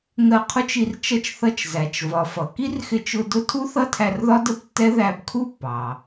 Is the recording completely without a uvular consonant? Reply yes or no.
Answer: no